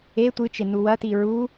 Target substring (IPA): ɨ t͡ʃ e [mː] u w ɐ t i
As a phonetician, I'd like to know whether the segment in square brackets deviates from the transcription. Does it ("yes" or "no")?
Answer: yes